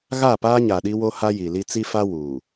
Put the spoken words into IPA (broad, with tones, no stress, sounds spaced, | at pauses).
ɣ a˦˨ p aː˦ ɲ a˨ ɗ i˦ w o˦ h a˦ j i˨ l i˦ t͡s i˦ f a˦ w uː˨